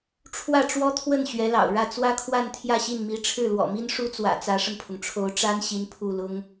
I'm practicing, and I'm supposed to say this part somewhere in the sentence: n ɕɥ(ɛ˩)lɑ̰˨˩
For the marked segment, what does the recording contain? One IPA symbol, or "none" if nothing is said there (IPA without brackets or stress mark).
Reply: ɛ˧˥